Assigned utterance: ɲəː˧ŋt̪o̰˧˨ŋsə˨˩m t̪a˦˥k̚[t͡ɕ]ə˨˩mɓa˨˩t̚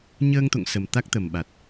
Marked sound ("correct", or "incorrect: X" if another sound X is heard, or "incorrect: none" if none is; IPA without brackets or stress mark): incorrect: t̪